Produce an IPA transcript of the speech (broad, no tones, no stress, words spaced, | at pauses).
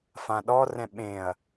fãɗɔ rɛ̃ɓẽɐ̯